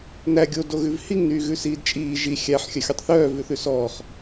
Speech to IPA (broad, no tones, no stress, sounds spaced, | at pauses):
n æ ɡʲ o d o ɣ ʉ v h i ŋ n yː ɣ ʉ s iː d t͡ʃʼ iː ʒ i xʲ æ ħ xʲ œ xʲ u tˤ θ œː v ʉ θ ʉ s ɔː χ